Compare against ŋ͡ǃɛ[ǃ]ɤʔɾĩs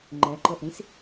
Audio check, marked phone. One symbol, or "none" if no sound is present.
ǃ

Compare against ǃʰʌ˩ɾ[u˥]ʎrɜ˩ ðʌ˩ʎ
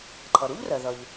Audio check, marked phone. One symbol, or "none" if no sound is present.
u˥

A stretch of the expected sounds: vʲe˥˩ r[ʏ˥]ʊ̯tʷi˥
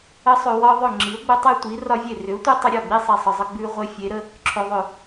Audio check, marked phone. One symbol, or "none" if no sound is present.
ʏ˩˥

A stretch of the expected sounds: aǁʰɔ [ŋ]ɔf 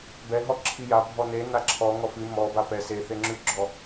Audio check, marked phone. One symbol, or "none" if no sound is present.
ŋ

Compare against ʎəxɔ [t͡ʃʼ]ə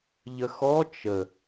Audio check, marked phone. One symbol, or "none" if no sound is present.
t͡ʃ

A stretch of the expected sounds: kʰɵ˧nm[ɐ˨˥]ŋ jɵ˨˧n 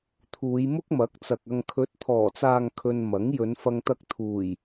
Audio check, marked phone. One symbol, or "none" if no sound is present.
ɐ˨˥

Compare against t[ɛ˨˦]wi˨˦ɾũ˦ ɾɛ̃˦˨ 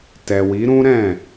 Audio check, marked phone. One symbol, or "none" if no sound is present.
ɛ˨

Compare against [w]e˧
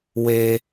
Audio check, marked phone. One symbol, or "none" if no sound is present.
w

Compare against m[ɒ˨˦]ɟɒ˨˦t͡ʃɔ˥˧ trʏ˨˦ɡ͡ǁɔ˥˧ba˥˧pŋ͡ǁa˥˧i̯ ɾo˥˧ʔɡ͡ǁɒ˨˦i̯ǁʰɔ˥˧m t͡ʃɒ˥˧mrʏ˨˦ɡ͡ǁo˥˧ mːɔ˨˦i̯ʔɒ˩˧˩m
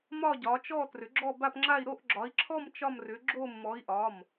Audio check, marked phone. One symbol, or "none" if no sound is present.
ɒ˥˧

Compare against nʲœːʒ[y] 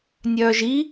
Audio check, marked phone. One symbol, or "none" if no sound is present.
i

